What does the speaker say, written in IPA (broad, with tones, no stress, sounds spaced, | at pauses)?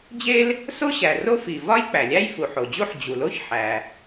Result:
d͡ʑ e˥ l | s o˥ ɕ æ˩ r o˥ f i˩ v ɒ˥ j k͡p æ˩ lʲ æ˥ j f u˩ ħ o˩ d͡ʑ u˥ ħ d͡ʑ u˩ l o˥ ç ħ æ˩